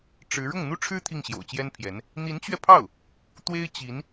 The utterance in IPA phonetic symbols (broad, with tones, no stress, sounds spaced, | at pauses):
ʈ͡ʂ ɻ̩˧˥ ɻ ʊ˥˩ ŋ n̪ u˥ ʈ͡ʂʰ ɻ̩˥ t̪ʰ i˥˩ ŋ ɕ j o̰˨˩ ʊ̯ t͡ɕ j ɛ˥ n pʰ j ɛ˧˥ n | n̪ i˧˥ n t͡ɕ ɥ ɛ˧ pʰ ɑ˥˩ ʊ̯ | t̪ w e˥ ɪ̯ t͡ɕ i˧˥ n